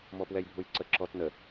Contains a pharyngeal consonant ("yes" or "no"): no